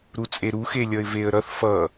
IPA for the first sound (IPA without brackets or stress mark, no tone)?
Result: ɾ